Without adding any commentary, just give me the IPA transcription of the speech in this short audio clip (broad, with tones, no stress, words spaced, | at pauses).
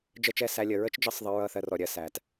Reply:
d͡ʒə˦˨t͡ʃɛ˦˨sæ˧ lʲə˨ɹə˦t͡ʃd͡ʒə˦˨sˤ ðˤə˧ ɹʌ˦˨θɜ˧rɔ˨ ɾʲɜ˧ sæ˨t